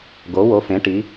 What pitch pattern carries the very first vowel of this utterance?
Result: rising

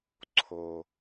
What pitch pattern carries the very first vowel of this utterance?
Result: low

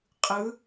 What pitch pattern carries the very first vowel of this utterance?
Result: rising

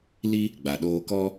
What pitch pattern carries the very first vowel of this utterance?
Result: high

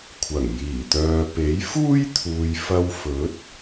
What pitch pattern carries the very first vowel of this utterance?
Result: low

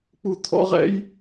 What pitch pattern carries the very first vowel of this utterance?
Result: falling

